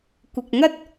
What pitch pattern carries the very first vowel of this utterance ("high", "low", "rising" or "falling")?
low